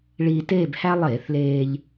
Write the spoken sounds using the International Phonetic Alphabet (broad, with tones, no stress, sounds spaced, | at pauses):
ɭ iː˧ t eː˥˧ b h æ˥ lˠ eː˧˩˧ θ l eː˧ ʎ